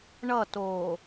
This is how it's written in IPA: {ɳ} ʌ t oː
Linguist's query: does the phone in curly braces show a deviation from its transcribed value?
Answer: no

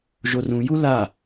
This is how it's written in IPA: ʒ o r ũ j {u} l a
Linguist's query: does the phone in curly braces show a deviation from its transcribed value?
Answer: no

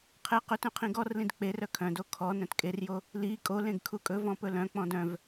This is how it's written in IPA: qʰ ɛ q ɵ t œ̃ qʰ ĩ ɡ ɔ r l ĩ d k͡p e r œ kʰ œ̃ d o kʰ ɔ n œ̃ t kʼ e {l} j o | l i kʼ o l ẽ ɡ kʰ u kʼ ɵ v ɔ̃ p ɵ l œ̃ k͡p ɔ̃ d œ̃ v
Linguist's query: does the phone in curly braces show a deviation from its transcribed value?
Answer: yes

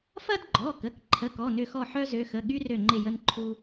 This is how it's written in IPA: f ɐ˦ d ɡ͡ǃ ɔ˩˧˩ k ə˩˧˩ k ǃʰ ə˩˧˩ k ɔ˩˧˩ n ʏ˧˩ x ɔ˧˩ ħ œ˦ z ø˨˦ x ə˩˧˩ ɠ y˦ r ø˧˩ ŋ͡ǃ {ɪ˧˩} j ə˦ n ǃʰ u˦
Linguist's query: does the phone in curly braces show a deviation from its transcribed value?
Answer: no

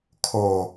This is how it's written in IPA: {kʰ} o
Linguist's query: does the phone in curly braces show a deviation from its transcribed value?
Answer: no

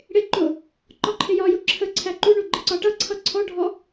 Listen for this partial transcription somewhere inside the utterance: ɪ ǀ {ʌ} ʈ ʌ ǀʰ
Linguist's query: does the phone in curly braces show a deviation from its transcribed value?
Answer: yes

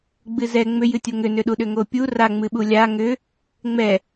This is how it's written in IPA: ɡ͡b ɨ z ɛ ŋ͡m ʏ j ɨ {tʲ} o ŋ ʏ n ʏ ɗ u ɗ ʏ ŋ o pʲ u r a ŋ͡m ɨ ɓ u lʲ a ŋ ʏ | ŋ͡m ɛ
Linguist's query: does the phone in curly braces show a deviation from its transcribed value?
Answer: no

